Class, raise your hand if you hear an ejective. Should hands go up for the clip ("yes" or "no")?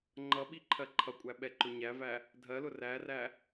yes